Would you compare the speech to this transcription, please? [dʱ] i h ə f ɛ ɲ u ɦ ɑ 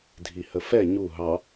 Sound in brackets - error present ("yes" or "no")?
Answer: no